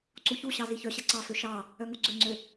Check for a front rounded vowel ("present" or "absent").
present